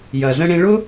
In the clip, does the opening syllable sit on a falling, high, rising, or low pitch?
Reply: low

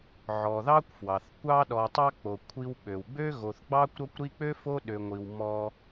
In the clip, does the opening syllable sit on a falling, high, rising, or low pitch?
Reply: low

